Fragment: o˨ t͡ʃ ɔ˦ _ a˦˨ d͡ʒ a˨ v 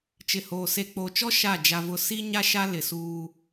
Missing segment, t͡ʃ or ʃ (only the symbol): ʃ